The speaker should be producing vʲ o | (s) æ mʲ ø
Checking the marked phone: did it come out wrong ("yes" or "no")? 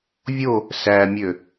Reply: no